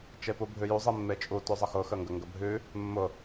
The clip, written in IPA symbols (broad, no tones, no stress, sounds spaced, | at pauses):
t͡ʃ e p u bʱ ʉ j u zˤ i mː e t͡ʃʼ u t ʉ zˤ ə x ʊ x ə ŋ ɡ ə ŋ ɡ ə bʱ ʉ | mː ʊ